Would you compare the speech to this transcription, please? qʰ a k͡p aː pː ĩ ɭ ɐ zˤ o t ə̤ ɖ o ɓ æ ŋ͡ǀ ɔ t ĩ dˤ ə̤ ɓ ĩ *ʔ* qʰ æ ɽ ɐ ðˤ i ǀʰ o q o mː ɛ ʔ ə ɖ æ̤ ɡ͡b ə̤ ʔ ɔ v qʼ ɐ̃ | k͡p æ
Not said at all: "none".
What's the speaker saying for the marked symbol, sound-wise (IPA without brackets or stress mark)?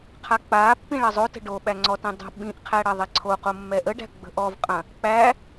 ʔ